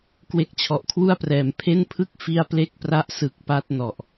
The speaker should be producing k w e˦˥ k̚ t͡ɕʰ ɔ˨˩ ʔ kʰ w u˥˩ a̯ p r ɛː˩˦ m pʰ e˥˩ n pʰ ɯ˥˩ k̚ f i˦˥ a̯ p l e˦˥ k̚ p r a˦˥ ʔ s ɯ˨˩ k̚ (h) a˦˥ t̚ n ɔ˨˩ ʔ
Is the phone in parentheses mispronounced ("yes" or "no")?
yes